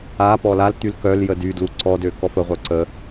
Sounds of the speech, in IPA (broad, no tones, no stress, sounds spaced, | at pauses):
a p ɔ l a l t̪ y l k œ l j ə d y d l u ǀ ɔ d ø k ɔ f ə ʁʷ œ ǀ ə